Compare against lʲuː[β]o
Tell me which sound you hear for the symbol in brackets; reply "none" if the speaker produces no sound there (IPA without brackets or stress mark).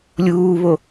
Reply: β